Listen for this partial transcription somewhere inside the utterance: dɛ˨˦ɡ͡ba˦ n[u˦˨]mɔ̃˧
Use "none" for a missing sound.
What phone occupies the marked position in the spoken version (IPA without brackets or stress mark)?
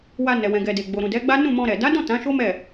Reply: ũ˦˨